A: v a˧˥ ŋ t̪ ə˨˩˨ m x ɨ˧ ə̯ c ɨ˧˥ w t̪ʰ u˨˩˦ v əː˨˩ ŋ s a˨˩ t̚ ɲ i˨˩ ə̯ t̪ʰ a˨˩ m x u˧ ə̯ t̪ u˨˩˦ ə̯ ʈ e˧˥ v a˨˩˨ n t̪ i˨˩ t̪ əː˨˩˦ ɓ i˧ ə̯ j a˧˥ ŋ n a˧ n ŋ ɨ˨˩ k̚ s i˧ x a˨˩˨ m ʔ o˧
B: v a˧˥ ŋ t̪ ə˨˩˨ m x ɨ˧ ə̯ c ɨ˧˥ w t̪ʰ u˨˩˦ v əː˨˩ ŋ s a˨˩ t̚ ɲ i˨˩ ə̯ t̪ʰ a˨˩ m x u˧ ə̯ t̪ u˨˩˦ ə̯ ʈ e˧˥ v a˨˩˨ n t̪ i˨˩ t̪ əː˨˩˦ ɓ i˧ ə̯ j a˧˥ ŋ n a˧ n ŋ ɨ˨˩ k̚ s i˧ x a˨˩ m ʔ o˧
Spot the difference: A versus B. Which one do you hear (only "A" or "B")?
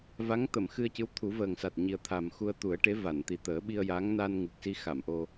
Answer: A